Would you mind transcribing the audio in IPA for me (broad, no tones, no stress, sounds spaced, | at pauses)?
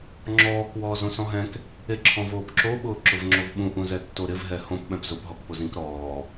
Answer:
ŋ͡ǁ ɔː k w ɔː z õ s ɔ̃ ɦ ɛ̃ k | e ǁʰ ɔ̃ v oː p ǁ o ɓ ʊː ǁ ʊ v ŋ͡ǁ o v ɓ ũ ʔ ũ z ɛ tː o ɾ ɪ v ɦ ɛ h õ p ɓ ɛ̃ p z ʊ p ɦ ɔ k p o z ĩ k ɾ ɔː